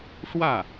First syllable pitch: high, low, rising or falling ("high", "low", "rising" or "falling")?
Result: falling